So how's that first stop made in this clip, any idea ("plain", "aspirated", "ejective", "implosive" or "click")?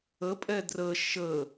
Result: ejective